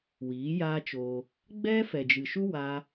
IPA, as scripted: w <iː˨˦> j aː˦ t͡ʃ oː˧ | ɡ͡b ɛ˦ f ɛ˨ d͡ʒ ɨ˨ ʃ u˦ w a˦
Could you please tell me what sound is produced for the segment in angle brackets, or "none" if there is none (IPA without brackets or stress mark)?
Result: iː˨˦